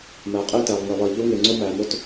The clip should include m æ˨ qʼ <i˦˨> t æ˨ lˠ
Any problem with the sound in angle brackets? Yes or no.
no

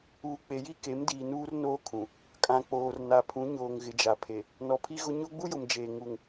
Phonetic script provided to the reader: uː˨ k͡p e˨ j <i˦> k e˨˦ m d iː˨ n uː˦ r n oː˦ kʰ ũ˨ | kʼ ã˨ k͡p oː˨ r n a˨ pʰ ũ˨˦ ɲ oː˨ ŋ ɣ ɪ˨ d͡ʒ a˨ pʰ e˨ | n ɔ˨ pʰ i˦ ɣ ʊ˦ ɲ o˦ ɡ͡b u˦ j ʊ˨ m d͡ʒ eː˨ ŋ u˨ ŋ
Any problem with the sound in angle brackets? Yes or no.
no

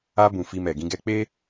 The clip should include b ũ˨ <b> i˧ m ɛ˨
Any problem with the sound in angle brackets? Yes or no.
yes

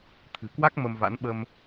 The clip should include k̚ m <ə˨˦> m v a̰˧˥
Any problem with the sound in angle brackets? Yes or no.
yes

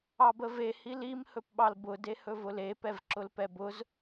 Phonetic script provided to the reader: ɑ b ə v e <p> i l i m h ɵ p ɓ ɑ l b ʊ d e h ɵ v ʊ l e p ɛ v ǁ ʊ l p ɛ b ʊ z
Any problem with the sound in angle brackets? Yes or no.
yes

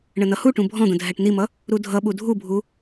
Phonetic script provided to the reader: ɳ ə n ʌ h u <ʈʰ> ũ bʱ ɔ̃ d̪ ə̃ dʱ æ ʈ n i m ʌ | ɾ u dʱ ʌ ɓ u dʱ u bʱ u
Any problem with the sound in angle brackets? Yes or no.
yes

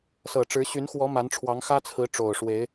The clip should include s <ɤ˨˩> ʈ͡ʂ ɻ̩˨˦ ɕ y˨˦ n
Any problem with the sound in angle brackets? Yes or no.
no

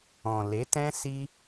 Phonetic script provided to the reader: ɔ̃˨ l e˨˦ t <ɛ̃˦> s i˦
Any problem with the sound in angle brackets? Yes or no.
no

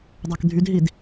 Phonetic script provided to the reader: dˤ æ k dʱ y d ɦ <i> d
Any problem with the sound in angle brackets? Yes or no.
no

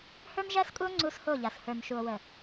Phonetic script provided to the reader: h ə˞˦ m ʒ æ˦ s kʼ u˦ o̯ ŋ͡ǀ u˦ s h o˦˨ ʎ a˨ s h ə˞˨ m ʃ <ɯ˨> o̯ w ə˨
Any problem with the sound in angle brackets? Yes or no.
yes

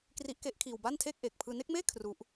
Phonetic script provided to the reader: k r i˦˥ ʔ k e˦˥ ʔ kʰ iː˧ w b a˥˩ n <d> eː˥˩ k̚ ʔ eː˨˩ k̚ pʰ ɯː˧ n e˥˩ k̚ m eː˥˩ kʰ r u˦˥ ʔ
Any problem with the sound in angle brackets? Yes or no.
yes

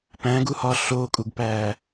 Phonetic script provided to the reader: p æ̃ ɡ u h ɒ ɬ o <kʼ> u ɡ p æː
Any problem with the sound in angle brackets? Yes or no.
no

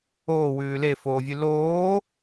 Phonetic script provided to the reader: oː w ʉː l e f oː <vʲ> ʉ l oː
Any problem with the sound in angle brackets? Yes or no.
no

